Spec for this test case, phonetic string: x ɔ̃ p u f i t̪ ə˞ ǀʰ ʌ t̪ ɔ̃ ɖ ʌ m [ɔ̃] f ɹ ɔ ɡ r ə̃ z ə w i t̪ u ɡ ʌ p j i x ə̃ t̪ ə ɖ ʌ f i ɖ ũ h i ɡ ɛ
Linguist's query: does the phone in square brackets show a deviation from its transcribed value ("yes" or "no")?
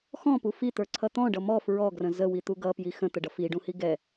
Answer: yes